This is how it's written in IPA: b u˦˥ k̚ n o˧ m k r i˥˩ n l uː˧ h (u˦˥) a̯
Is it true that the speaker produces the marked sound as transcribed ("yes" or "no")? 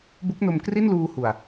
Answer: no